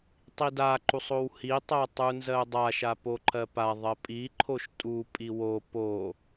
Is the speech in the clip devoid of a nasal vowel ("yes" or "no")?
yes